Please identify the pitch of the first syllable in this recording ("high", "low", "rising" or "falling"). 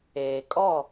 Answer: low